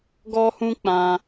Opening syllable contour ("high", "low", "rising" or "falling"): high